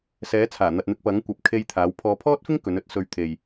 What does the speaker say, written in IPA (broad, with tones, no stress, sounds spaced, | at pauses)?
s ɛː˨˥ t͡sʰ aː˨˩ n̪ ɐ˨ t̚ n̪ ɪ˧ k̚ p ɐ˨˥ ŋ kʷ ɐ˨ p̚ kʰ e˧ j t̪ʰ aː˨˥ w pʰ ɔː˨˧ pʰ ɔː˥ t̚ f ɪ˥ ŋ k ɵ˨˥ n ɵ˥ t̚ s ɵ˧ ɥ t̪ʰ e˨ j